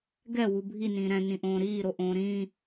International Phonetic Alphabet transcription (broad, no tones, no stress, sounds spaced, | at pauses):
ɡ ɛ w u bʱ i n ĩː ɾ ɛ̃ n ĩ ʔ õː ɾ iː ɾ o ʔ õː ɾ ĩː